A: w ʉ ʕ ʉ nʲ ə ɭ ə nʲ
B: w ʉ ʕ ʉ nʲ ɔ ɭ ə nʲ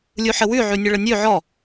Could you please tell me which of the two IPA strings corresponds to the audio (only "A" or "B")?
A